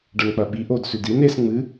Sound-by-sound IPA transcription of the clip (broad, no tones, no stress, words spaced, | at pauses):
ɖɐnk͡pɐɓi ʔod sʉdin es ŋ͡mɨ